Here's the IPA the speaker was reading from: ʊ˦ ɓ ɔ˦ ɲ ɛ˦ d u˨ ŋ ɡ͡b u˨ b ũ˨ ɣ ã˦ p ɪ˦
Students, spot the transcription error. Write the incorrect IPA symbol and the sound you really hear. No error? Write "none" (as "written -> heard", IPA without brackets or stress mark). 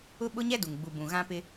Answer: ɔ˦ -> ʊ˦